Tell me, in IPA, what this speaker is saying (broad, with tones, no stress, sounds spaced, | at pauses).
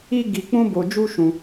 i˦ ɡ i˧ k͡p ũ˦ b o˧ d͡ʒ u˦ ʃ ũ˧